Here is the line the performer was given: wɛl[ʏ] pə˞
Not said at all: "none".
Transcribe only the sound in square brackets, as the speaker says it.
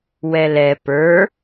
ɛ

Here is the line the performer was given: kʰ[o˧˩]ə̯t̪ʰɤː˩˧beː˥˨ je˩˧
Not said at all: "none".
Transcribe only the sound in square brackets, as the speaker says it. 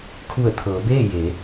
u˧˩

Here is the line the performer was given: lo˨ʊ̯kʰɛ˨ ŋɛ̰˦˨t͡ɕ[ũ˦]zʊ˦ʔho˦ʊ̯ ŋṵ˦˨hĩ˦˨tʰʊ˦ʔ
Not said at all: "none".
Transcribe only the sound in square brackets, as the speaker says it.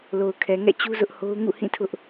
u˦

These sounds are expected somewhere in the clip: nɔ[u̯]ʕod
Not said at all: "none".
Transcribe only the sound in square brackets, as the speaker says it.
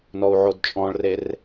u̯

